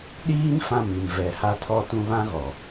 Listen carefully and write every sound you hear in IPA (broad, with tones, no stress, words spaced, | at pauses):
ɗiː˦n fã˦˨mi˨mvɛ˨ ha˦tʰɔ˦tũ˦ βã˦ɣɔ˨